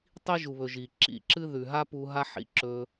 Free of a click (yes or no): no